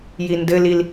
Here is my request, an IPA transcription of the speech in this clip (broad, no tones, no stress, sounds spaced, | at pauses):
j i n d ɘ l i l